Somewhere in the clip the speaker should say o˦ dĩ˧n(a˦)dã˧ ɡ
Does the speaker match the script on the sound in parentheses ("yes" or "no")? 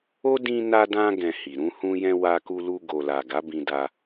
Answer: no